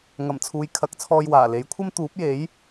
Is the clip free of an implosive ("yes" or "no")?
yes